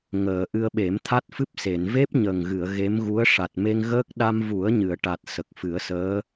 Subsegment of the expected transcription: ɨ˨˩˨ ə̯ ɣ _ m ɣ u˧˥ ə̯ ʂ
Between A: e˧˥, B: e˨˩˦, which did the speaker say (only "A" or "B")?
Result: A